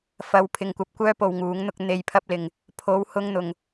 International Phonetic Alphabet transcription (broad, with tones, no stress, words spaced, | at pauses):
fɐ˨w pʰɪ˧ŋkʷɐ˧p̚kʷœː˥ po˨wŋuː˨˧ŋn̪ʊ˧k̚ n̪e˨jpʰɐ˧p̚lɪ˨ŋ | pʰo˨˧w hʊ˧ŋn̪ʊ˨ŋ